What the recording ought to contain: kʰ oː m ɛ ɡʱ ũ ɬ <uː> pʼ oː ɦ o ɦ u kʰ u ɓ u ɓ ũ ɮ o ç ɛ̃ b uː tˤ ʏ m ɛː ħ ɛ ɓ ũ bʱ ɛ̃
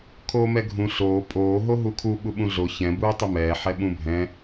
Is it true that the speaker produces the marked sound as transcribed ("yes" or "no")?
no